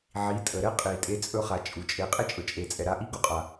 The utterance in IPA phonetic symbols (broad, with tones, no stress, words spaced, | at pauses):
ʕi˨˦tʼə˨ ɾɛ˦qʼi˨tʼe˧ t͡sʼɵ˧χa˨ t͡ʃʼu˨t͡ʃʼe˧ qʼe˦t͡ʃʼɵ˨t͡ʃʼe˨t͡sʼɛ˨ ɾa˧ʔi˦ɡu˦qʼa˨